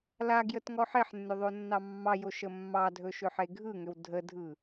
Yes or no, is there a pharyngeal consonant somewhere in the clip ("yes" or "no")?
yes